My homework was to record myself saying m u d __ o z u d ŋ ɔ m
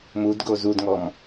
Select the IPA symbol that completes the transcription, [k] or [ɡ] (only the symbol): ɡ